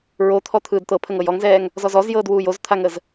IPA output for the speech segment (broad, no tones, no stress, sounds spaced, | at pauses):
ɹ o t̪ʰ ɔ t̪ʰ ɯː d t̪ ɤ pʰ ə ŋ ɤ j ɔ ŋ z ɛː ŋ | z ɔ z ɔ z j ɤː d w uː j o z t̪ʰ a ŋ ə z